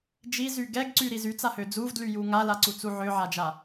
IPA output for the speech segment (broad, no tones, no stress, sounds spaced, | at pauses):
d͡ʒ i z y ɡ ɛ ɡ ǀ y ɾ i z y t͡s a h ø d͡z u v d l y j u ŋ a l a ǀ u t͡s u ʕ ø ʕ a d͡ʒ a